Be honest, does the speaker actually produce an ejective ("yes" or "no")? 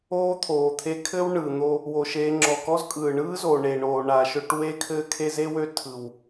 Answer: yes